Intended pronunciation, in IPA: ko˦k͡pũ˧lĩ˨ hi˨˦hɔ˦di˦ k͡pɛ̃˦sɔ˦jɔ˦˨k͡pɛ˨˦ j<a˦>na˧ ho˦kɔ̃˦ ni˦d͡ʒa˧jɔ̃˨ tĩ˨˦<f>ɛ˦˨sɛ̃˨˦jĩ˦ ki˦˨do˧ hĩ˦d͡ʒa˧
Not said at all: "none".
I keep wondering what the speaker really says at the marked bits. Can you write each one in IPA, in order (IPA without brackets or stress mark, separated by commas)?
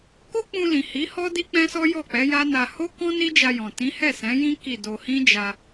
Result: a˦, h